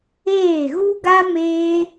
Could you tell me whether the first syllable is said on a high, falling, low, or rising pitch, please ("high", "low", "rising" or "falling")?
falling